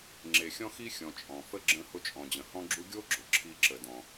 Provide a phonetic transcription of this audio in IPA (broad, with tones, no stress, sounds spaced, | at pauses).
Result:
ŋ͡ǁ e˨ xʲ ɔ̃˦ x i˦ xʲ ɔ̃˨ t͡ʃʼ ɔ̃˩ f ə˥ ɡ͡ǁ ə̃˦ h ʊ˦ t͡ʃʼ ɔ̃˨ d͡ʑ ə̃˨ h ɔ̃˦ ɡ͡ǁ u˦ ɡʲ o˥ ɡ͡ǁ ʊ˩ ǁʰ i˦ ǁ ə˨ d ɔ̃˨